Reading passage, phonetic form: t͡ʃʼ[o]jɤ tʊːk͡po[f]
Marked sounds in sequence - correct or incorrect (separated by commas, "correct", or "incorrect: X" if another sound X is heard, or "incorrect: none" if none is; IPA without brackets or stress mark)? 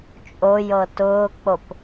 correct, incorrect: p